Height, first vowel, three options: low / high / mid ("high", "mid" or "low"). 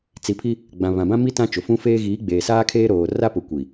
high